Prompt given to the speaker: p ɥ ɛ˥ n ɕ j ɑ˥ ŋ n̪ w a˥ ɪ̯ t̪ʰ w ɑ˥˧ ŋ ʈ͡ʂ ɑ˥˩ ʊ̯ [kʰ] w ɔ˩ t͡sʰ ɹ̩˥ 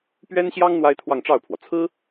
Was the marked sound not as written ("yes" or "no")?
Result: yes